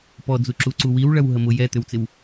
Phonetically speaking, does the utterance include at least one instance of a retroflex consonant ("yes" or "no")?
yes